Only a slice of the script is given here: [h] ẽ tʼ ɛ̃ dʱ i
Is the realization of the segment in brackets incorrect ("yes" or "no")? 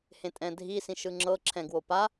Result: no